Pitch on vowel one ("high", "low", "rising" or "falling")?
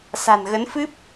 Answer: low